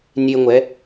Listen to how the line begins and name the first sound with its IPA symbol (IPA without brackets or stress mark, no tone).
nʲ